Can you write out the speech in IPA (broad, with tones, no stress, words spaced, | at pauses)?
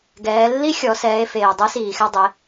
ɡɛː˩˧lːi˥xʲɔ˩˧ sɛː˩˧e̯feː˩ dˤɛ˧˥siː˩xɛ˧ dˤe˩˧